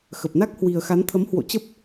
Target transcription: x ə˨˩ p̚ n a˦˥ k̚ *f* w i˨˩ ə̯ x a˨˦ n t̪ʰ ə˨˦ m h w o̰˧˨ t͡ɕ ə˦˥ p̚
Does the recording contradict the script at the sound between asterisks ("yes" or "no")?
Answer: yes